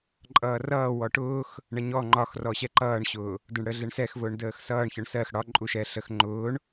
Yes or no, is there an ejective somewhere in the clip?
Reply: yes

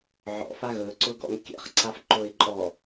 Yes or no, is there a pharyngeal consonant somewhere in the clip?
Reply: yes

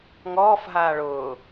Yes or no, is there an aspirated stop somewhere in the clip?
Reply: no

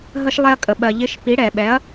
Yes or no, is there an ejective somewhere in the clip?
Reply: yes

